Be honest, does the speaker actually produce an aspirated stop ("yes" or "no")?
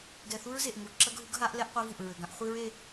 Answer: no